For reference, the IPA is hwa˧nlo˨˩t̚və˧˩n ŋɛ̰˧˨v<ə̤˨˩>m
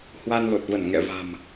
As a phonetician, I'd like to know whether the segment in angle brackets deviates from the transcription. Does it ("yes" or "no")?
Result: yes